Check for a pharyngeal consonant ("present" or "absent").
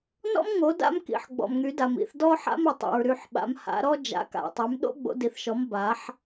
present